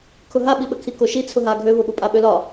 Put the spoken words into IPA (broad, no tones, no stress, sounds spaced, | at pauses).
kʰ ʊ ɦ a ɓ i ɓ ə kʰ i k o ʃ i t͡sʰ ʊ ɦ a ɡʱ ø v ʊ ɓ ʊ pʼ a ɓ ø l ɒ